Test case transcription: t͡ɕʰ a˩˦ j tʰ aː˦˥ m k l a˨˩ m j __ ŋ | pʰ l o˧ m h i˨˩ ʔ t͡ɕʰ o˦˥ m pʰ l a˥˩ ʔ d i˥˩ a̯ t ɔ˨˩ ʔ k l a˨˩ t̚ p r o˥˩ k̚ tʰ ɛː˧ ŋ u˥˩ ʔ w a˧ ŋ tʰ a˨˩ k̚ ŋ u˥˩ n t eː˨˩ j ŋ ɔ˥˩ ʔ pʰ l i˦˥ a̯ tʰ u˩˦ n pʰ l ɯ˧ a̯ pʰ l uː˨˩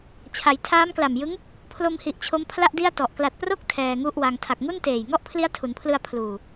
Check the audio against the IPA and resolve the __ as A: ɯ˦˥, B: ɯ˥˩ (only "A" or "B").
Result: A